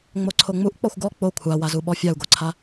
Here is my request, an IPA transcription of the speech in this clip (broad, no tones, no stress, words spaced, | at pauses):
ŋ͡moǀʰoŋ͡muʔ k͡pɔxʷɡɔ k͡po kʷʰawazu ɓɔfʲau̯ɡoǀʰa